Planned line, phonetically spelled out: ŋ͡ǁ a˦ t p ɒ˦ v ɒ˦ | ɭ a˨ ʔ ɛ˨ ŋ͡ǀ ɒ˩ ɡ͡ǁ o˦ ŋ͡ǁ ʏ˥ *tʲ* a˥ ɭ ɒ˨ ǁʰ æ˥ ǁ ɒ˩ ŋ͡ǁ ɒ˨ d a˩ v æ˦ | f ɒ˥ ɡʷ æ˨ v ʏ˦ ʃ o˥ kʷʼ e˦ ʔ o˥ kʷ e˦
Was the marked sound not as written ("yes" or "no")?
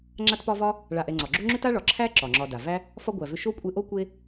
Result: yes